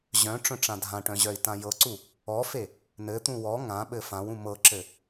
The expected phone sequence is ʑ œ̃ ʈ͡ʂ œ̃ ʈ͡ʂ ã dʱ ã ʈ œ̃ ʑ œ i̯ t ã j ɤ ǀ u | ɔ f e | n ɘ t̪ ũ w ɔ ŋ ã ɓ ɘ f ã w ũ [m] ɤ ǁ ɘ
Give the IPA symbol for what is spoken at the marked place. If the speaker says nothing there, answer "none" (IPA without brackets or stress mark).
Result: m